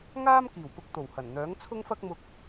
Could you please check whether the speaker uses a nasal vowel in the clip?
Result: no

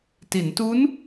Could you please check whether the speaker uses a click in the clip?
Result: no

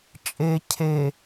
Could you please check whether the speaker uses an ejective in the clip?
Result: yes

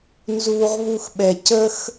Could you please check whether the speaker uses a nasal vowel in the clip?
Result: no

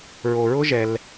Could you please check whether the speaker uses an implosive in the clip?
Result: no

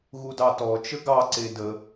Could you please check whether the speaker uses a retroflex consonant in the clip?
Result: no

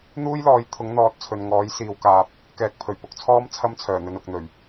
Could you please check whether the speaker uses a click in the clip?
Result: no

